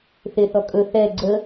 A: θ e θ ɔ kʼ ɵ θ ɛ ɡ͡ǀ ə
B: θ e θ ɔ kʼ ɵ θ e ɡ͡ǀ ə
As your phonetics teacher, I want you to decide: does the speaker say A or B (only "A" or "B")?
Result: A